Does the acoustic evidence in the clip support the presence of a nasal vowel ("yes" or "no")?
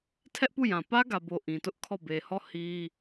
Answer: yes